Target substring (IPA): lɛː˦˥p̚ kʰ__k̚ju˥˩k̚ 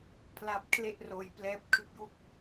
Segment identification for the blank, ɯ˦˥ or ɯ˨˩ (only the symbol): ɯ˦˥